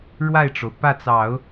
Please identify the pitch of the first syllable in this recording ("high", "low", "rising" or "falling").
falling